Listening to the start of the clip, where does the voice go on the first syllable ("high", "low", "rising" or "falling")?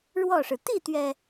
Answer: falling